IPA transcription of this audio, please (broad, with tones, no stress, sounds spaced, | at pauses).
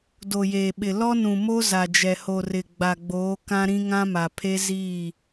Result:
d o˨ j eː˨ ɓ ɪ˨ l ɔ˦ n ũ˨ m o˦ z a˨ d͡ʒ ɛ˨ h o˨ r ɪ˨ ɡ͡b a˨ ɡ͡b oː˨˦ k ã˦ ɾ ĩ˦ ŋ ã˦ m a˨ pʰ e˦ z i˦˨